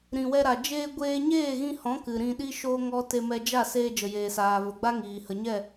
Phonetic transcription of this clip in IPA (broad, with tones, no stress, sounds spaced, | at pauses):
ɾ ĩ˨ w ɛ˧ ɾ a˨ d͡ʒ eː˧ ɡʷ eː˧ ɲ eː˦˨ ɣ ĩ˧ h ɔ̃˨˦ k ɨ˨ ɾ ĩ˧ ɗ i˦ ʃ o˦ ŋ ɔ˦ t e˧ m ɛ˧ d͡ʒ a˦˨ s eː˧ d͡ʒ ə˨ j eː˨ s aː˨ v ə˨ ɡ͡b a˦ ŋ iː˨ h ə˨ ɲ ɛ˦˨